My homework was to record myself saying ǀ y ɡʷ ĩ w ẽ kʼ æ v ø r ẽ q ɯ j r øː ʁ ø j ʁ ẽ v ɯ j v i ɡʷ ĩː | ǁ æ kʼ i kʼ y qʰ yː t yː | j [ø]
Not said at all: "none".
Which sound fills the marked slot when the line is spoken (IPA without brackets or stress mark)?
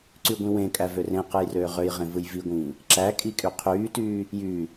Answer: y